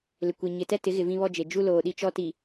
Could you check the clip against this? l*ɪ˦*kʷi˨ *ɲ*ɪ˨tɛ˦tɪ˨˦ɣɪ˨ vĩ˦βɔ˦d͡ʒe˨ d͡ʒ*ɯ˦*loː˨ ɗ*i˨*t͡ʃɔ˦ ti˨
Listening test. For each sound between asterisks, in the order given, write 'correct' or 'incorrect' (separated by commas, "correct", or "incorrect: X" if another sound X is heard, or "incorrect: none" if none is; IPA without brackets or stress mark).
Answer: incorrect: ɪ˨, correct, incorrect: u˦, incorrect: i˦